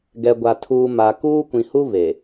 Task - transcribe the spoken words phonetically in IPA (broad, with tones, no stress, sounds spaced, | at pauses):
ɡ ɛ˨ ɡʷ a˨ tʰ uː˨ m a˨ k uː˦ kʷ ĩ˨ h u˦ β e˨